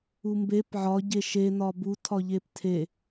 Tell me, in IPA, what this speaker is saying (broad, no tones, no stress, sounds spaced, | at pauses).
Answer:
u m b e p ʕ ɒ ɟ e ʃ e n ɒ b u tʰ ɒ ʎ e p tʰ e